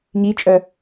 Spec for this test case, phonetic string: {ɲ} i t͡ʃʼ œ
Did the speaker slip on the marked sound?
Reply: no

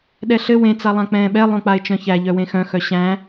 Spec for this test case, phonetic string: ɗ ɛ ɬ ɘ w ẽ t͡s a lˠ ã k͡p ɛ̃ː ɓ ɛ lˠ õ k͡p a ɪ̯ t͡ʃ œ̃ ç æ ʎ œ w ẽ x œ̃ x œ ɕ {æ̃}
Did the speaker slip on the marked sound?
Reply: no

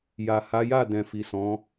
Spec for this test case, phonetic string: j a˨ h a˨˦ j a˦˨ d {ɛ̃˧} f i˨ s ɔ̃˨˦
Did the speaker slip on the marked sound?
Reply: yes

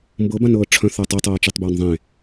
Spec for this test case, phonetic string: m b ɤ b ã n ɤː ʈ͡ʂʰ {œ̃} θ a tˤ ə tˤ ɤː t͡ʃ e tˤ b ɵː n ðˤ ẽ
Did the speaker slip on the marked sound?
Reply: no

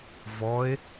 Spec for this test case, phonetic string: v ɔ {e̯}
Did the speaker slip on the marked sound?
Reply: no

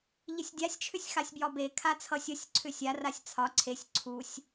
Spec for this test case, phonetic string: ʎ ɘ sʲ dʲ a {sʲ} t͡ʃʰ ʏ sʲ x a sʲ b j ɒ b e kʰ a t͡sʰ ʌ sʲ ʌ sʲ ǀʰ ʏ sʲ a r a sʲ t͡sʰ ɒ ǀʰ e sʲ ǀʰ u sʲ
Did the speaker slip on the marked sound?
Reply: no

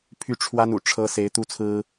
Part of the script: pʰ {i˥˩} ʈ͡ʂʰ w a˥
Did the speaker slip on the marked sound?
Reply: yes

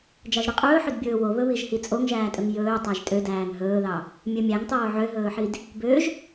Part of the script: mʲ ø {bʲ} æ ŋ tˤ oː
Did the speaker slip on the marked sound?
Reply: yes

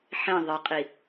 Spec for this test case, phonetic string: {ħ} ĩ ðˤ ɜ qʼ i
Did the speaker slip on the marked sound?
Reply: no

